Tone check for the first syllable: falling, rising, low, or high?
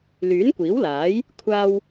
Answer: rising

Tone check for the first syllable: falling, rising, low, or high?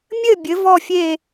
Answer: falling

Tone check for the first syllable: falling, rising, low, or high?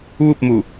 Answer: falling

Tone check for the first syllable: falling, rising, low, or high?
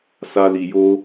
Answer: high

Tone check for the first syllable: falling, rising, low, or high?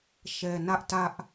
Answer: low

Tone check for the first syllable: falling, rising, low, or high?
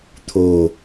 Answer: low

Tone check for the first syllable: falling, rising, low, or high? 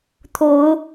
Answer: rising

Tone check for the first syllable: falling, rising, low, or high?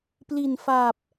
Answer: low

